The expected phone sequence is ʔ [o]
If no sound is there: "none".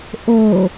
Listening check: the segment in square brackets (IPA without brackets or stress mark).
o